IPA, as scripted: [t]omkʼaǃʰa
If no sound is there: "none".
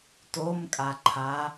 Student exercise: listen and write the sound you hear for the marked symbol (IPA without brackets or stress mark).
t